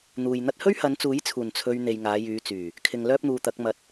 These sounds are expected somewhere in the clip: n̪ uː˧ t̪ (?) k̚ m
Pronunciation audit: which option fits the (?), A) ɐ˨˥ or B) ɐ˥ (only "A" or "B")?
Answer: A